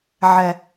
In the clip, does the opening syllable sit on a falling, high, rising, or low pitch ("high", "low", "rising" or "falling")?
low